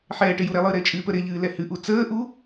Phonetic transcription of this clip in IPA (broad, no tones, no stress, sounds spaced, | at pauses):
ħ ɛː ʈ ɪ j u ɾ ɛ lˠ ɨ ɾ e t͡ʃʼ ɨː p ə ɾ ɪ ʎ ɨː l ɛ h ɨ ʔ u t͡s əː ʔ u